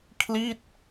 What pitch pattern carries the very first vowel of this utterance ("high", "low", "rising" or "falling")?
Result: falling